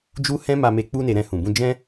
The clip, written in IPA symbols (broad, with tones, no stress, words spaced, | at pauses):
d͡ʒu˦ hɛ̃˦ma˧me˧ k͡pu˦ne˧ ɾɛ̃˧hũ˨bũ˧ d͡ʒɛ̃˦